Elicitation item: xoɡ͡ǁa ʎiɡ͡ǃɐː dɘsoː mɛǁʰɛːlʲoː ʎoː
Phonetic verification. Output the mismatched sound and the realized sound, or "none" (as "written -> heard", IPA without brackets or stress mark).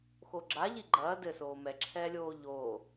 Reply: none